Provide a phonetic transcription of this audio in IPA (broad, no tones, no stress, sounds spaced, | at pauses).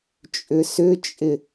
t͡ʃʼ ʏ s ʏ t͡ʃʼ ɪ